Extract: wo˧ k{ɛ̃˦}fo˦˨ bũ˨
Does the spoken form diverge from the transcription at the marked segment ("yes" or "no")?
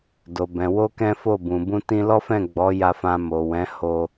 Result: no